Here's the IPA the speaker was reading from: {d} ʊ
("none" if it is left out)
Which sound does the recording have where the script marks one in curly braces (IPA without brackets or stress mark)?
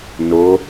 n